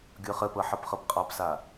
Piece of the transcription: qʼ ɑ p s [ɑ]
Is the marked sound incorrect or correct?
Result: incorrect